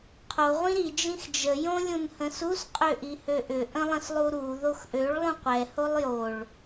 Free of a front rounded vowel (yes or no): no